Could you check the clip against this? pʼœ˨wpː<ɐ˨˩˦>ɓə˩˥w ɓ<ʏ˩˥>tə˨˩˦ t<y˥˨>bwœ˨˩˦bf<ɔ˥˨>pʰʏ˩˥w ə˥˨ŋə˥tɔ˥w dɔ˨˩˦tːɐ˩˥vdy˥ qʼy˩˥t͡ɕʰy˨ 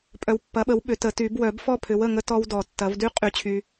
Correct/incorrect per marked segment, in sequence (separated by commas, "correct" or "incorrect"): incorrect, incorrect, incorrect, correct